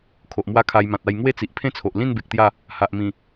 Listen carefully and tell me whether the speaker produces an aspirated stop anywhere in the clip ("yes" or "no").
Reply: yes